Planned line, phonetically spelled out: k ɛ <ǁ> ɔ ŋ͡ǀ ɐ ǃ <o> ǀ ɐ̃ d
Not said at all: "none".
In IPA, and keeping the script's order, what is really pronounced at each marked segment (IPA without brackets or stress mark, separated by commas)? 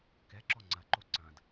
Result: ǁ, o